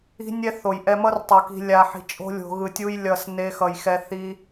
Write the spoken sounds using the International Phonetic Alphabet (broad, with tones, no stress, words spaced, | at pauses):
i̤˦ nʲɛ˦θo˨j ʔɛ˧mʌ˦rtˤu˨ki̤˧ lʲa˧ħi̤˧t͡ʃʼo̤˦lʲo̤˧ ɣɯ˧tʲu˦j lʲʌ˧s ne˦xʌ˧jxɛ˦ θi˦